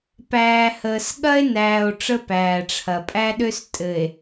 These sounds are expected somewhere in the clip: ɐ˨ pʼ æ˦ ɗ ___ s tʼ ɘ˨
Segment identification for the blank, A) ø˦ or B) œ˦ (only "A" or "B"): A